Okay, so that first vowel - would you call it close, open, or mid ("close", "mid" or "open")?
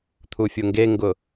close